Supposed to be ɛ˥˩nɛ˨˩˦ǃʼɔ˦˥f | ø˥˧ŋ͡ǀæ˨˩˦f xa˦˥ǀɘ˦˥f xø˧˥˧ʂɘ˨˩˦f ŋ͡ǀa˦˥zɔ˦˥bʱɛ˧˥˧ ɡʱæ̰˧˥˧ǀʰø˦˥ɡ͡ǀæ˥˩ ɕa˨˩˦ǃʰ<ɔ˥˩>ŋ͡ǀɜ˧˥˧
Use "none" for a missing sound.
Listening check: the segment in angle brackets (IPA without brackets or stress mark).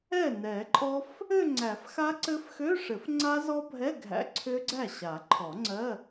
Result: ɔ˨˩˦